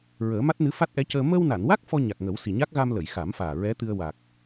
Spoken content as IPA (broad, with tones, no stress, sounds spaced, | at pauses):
ɹ əː˨˩˦ m a˦˥ t̚ n ɨ˧˥ f a˦˥ t̚ ʔ ɛ˧˥ c əː˧ m əː˧ w n a˨˩˨ n w a˦˥ k̚ f ɔ˧ ɲ a˨˩ k̚ ŋ ə˨˩˦ w s i˨˩ ɲ a˦˥ k̚ ɣ a˧ m l ə˨˩˨ j x a˨˩˦ m f aː˨˩ ɹ ɛ˧˥ t̪ ɨ˧ ə̯ w a˨˩ k̚